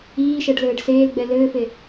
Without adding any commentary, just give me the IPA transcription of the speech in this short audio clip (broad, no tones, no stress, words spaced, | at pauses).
iːʃɛɖlɘːɖ seːlɡ͡bɛ lɘːfe